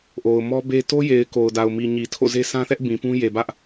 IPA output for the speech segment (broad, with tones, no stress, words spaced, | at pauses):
ʔo˨ʊ̯mɔ˦be˦ to˦je˨ɪ̯ ko˨ʊ̯da˨ʊ̯mi˨ ɲi˨tʰo̰˦˨ze˦ sʰã˦θɛ˦ʔ bĩ˨pũ˦ je˨bä˦ʔ